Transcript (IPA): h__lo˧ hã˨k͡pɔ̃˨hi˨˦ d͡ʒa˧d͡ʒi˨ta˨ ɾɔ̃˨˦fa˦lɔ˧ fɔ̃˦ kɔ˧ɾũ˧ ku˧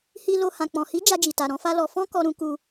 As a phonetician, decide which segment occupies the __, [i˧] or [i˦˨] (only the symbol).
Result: i˧